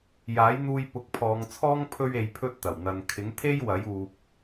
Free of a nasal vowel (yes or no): yes